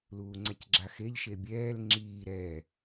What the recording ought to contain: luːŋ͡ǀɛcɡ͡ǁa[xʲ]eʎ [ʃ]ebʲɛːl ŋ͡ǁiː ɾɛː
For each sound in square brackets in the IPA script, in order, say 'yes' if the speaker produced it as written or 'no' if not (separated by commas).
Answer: no, yes